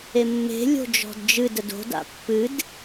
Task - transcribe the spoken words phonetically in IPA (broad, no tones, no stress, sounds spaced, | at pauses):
e mː e̤ lʲ o̤ d͡ʒ ɔ̤ d d͡ʒ ɨ d ə d o̤ d a̰ pː ɨ d